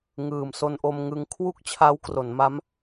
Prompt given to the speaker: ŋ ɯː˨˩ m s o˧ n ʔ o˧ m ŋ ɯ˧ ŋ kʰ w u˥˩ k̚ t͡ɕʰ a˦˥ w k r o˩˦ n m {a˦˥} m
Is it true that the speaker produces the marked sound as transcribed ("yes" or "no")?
yes